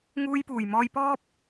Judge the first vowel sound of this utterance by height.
high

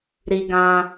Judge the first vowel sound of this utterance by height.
high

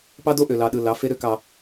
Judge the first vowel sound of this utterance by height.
low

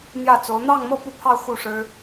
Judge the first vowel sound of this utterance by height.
low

